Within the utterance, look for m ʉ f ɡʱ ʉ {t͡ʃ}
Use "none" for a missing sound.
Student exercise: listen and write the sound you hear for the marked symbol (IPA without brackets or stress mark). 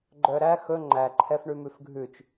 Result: t͡ʃ